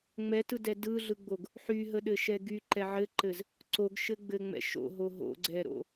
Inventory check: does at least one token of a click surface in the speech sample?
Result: yes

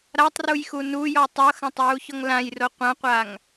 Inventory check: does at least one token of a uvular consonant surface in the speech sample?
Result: yes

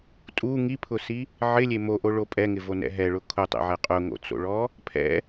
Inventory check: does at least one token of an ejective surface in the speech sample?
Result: yes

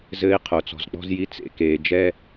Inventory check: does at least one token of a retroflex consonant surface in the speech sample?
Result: no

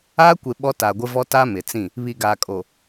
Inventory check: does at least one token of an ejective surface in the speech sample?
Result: yes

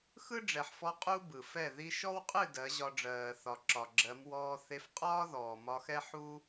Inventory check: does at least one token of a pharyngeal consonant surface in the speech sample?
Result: yes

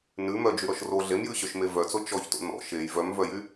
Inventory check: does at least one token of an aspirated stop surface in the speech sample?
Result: no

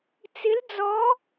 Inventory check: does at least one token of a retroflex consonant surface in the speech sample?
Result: no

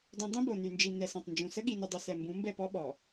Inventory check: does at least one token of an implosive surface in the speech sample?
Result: yes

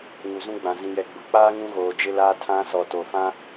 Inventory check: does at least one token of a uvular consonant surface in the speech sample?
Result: no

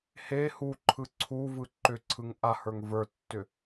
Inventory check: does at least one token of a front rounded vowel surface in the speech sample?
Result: yes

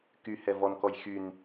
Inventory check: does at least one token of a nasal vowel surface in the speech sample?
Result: no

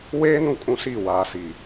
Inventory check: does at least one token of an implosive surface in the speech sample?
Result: no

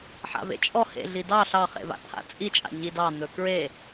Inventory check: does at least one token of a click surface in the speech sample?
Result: no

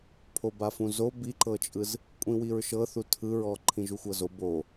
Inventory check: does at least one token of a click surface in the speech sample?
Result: yes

